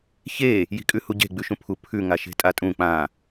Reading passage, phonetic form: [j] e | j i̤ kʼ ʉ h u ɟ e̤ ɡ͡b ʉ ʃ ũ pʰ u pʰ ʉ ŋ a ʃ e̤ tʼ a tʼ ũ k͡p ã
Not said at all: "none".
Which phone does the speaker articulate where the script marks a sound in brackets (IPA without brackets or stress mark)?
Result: ç